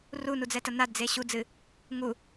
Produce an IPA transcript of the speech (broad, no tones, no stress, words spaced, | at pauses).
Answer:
runud͡zɛtɐ nadd͡ze ɕud͡zɨ | ŋu